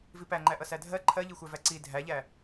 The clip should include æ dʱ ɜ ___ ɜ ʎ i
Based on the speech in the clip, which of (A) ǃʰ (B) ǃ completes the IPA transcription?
A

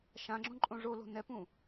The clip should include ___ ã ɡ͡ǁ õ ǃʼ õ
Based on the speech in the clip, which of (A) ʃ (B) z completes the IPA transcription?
A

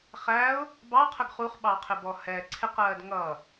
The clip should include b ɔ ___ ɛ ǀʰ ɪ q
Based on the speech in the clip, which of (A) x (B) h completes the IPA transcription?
B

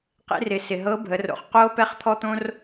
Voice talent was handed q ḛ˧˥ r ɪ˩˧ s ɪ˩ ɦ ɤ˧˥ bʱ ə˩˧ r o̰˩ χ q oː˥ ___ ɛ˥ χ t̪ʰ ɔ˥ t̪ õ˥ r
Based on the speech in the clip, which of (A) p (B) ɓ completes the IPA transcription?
A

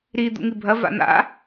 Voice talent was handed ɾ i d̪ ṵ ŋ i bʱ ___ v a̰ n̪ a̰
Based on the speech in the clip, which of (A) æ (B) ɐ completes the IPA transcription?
B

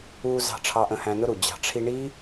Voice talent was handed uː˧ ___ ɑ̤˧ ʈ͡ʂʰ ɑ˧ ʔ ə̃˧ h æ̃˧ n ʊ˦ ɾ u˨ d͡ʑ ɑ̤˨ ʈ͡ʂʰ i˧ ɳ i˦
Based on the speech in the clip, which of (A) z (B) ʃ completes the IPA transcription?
A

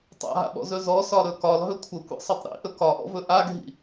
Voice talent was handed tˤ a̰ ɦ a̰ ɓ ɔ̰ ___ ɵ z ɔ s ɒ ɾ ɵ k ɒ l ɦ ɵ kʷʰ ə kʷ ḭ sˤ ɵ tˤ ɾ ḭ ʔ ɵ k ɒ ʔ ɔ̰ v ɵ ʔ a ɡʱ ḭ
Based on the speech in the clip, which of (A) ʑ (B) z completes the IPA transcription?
B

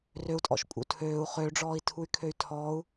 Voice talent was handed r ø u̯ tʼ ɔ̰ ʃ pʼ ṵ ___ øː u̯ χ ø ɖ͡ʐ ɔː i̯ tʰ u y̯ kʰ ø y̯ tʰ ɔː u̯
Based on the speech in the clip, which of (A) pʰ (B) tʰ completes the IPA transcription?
B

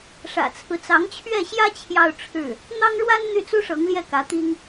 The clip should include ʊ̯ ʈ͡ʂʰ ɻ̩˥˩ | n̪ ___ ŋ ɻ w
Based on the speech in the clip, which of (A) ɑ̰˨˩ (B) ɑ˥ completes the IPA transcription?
B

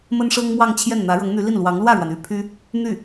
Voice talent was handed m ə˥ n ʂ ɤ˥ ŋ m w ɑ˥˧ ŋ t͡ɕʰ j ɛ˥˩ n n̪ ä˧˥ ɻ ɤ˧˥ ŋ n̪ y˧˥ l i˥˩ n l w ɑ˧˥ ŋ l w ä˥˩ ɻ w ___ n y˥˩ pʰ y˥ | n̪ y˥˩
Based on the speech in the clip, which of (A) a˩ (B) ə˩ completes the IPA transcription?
A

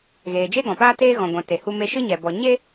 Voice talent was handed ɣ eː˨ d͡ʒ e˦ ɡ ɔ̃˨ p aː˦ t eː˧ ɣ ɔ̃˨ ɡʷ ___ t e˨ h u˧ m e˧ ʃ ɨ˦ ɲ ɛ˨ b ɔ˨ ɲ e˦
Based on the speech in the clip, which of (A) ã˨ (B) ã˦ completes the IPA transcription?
A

